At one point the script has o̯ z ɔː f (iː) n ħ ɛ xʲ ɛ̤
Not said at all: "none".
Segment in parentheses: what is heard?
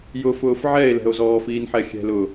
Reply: iː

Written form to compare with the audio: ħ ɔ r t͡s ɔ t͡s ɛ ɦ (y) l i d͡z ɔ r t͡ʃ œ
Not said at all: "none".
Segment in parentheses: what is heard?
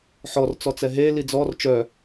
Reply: e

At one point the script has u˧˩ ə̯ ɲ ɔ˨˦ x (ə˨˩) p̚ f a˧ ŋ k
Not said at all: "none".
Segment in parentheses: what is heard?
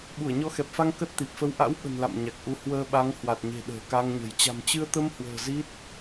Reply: ɛ˨˩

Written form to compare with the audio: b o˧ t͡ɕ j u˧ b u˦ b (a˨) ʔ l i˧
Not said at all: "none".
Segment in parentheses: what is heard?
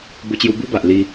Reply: a˨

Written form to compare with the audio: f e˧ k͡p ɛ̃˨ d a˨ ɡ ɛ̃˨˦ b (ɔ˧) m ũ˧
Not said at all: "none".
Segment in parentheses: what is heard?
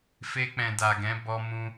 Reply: ɔ˧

